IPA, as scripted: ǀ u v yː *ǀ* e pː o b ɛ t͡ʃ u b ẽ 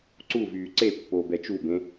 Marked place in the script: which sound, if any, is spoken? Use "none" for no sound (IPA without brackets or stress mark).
ǀ